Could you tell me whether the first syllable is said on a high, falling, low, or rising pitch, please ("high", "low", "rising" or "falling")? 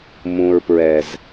low